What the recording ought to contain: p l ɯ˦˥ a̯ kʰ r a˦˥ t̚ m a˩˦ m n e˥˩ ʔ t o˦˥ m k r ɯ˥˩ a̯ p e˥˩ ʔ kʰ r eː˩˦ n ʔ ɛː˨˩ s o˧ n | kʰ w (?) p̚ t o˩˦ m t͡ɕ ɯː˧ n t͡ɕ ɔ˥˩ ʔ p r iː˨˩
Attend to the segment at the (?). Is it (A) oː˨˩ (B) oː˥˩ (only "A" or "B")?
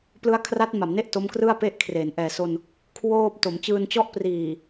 B